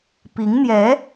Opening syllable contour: rising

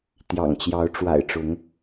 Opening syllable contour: low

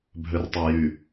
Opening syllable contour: low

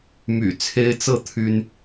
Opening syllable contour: low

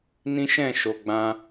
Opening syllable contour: high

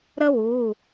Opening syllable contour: high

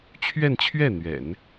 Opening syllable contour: falling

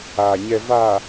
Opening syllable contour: low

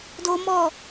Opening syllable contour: high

